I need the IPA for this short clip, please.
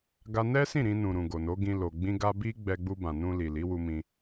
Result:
ɡ a˧ n ɛ˦ s ĩ˦˨ ɾ ĩ˧ n ũ˨ ɾ ũ˨ ɡ o˨ n o˨˦ ɡ ĩ˧ l o˨ ɡ͡b ĩ˧ ɡ a˧ b i˦ ɡ͡b ɛ˧ ɡ͡b u˧ b ã˨ n ũ˧ l i˨ l i˨˦ w u˧ m ĩ˧

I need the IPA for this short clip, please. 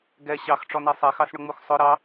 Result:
ɡ ɛ ɕ ɑ x ʈ͡ʂ ɔ n ɛ sˤ ɛ x ɑ s ɳ ʊ ŋ͡m u x sˤ ʊ ɾ ɑ

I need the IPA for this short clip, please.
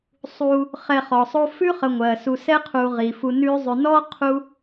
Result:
sˤ u˨ | χ ɛ˨ χ ɔ˩ sˤ o˦ f ʉ˥ χ ə˨ ŋʷ ɜ˩ s u˨ s ɛ˥ qʰ u˨ ʁ i˩ f u˨ n ʉ˦ zˤ ʉ˨ n ɔ˥ qʰ u˦

